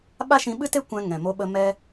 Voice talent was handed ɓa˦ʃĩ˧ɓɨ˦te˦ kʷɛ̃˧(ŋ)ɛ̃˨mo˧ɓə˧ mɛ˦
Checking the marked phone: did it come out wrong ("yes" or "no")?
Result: no